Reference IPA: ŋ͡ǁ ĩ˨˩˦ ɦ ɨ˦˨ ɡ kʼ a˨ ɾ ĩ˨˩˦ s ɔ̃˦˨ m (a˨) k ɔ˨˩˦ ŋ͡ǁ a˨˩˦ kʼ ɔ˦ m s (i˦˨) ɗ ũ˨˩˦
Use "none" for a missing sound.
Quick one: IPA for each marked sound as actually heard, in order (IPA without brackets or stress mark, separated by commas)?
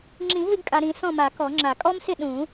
a˨˩˦, ɪ˦˨